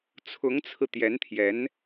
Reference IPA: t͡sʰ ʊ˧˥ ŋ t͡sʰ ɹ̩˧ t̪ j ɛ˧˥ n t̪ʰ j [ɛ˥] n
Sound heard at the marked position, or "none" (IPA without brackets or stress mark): ɛ˧˥